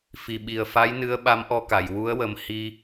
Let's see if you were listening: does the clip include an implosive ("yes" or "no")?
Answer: yes